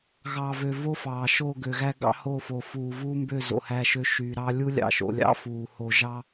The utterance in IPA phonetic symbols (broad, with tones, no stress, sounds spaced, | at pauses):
ɣ ɑ˨ v ø˨ v o˦ f ɑː˨ ʃ o˦˨ ɡ ø˨ ɣ æ˦ ɡ ɑ̰˦ h o˦˨ f o˨ f uː˨ v u˦ m b ø˦˨ z o̰˨ h æ˦˨ ʃ ø˦ ʃ y˨ ɾ ɑ˦ lʲ u˦ lʲ ɑ̰˨ ʃ o̰˨ lʲ ɑ̰˦ f uː˨ h o˨ ʒ ɑ˦